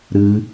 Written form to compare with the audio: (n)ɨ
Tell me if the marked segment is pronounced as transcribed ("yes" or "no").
no